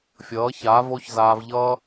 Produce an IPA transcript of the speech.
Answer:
fʲʌː˨˦ça˨˦vo˦çzaː˧v ʎʌ˧

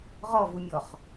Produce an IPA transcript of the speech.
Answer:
ʁɔvumʲɔχ

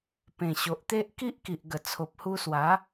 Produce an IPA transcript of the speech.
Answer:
pẽ˨˩ɕo˨ʔt̪e˦ʔ ki˦ʔki˨ʔɡə˨˩ t͡sʰo˨p̚hu˧swa˨˦

